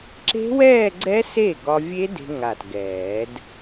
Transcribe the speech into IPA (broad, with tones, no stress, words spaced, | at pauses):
ǁe̤˦˥wɛː˥˧ɡ͡ǀɛ˦˥ se˥˩ɡɒ˧vʲe˦˥ de̤˧ŋa˨˩t ɡɛː˨˩˦d